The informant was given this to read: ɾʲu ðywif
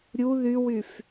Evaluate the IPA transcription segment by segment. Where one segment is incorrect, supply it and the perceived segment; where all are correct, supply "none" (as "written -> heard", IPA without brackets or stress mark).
i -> y